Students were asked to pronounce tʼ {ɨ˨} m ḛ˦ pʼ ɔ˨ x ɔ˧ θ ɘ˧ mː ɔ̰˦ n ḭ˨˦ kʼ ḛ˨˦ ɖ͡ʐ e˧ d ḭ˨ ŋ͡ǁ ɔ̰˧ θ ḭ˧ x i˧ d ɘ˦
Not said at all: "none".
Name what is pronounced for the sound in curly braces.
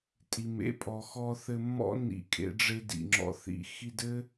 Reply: i˨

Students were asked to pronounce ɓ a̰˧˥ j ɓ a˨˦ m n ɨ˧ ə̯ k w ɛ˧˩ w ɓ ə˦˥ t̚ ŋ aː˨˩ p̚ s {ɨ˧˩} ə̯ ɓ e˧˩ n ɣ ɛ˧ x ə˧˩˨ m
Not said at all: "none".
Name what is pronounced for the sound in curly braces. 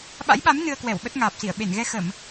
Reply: i˧˩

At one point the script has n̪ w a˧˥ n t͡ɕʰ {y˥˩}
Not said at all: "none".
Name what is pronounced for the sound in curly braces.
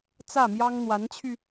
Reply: y˧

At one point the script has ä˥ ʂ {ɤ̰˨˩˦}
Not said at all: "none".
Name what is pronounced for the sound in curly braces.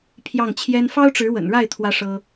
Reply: ɤ˥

